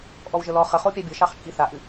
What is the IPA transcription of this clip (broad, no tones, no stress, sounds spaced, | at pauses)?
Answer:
ʔ ɔ w ʒ ə l ɔ χ ə χ o pʲ a bʲ ə ʃ ɑ χ t͡ʃʼ i θ a ʔ ɨ